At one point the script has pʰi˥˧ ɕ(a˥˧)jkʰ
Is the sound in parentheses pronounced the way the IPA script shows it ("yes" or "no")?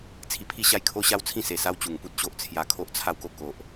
yes